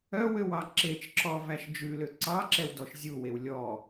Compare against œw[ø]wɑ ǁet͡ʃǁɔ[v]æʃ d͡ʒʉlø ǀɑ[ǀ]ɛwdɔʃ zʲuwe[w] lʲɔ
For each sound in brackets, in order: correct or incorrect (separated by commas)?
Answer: correct, correct, incorrect, correct